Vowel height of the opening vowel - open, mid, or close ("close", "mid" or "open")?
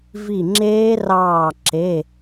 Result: close